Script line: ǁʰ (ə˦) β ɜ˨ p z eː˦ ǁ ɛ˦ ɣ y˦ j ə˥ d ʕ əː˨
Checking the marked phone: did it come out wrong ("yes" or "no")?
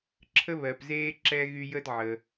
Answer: no